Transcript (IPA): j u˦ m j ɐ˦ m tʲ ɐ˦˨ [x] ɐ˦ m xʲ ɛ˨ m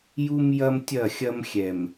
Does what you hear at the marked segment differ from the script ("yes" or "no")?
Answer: yes